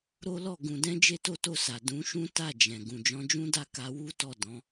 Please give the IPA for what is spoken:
ɾo˦lɔ˦˨ ɡũ˨dɛ̃˧ d͡ʒe˦to˦to˦˨sa˨ dũ˨˦ʃũ˦ ta˦˨d͡ʒɛ̃˨ ɡũ˨d͡ʒɔ̃˨˦d͡ʒũ˦da˦˨ ka˧wu˦tɔ˦˨ dɔ̃˨˦

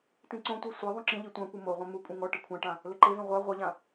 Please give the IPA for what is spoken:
tĩǀõtʷe sʷeðˤũ ǁĩʎi tʷãkʷɨ moʁʷɛ̃ mu kʷʼĩŋɔʈɨ kʷʰãʈã | lɘǃevẽ ʁʷa ʁʷeʎã

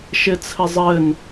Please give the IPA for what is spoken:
ʃɪt͡sʰɘzˤɘn

